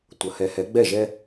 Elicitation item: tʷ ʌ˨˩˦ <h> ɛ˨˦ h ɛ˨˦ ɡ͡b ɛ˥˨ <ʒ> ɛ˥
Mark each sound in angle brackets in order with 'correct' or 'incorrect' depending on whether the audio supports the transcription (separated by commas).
correct, correct